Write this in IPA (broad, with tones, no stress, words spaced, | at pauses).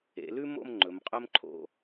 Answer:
ḛ˩˧lʉ˥mo̰˥˧m ŋ͡ǃɵ˩˧mqʼɵ˥mǃʰo̰˧